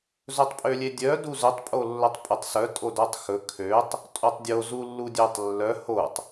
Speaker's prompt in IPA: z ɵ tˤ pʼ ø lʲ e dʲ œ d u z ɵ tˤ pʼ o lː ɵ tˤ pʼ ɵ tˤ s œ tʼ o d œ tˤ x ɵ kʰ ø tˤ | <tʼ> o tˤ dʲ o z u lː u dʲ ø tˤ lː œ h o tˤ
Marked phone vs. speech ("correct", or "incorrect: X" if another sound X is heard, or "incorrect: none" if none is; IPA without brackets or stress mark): correct